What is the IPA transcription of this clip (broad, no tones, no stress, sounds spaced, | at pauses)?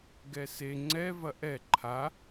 ɡ ɛ s e ŋ͡ǀ ɛ v ɐ ʔ ɛ ǃʰ a